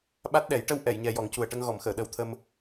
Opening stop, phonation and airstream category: implosive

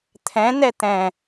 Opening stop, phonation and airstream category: aspirated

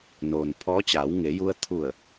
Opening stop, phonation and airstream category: aspirated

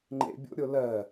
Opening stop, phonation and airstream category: click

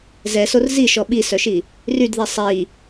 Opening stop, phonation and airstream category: implosive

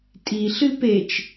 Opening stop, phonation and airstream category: ejective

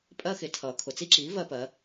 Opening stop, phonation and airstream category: ejective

